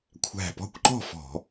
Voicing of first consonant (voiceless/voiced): voiceless